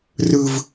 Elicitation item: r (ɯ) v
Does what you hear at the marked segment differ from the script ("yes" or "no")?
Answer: no